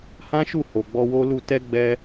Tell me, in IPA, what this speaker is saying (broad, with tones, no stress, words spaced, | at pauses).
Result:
hã˦ʃu˦˨ ho˨ɡ͡bɔ˧wo˦lu˦˨ tɛ˧ ɡ͡bɛ˧